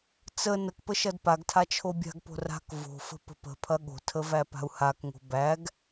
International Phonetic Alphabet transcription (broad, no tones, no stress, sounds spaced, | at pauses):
t͡s ə n ə k p ə ʃ ɐ d p a ɡ tʰ a t͡ʃʰ o bʲ a̤ ɡ p o̤ r a̤ k v o̤ f ə̤ p ə̤ p ə̤ pʰ ɐ ɠ o̤ tʰ ə v æ p a̤ u̯ h a k ŋ o̤ b æ ɡ